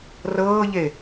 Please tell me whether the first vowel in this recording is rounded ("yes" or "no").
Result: no